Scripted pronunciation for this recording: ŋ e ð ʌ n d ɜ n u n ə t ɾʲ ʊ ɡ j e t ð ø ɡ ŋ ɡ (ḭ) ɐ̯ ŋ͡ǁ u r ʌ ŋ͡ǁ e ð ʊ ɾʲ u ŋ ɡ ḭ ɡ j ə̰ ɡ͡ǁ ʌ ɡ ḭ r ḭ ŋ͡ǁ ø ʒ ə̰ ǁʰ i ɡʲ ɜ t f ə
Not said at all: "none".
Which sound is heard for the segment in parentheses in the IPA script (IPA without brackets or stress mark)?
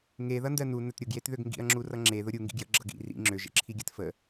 ḭ